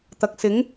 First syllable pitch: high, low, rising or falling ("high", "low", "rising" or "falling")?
low